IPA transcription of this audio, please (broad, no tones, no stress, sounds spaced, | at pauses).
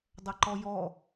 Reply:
dˤ ɐ ǃ ɔ j ɔ